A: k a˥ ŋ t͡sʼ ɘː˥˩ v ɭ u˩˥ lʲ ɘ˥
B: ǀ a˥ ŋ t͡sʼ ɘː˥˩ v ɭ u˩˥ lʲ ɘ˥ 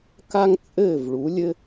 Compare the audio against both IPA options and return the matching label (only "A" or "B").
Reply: A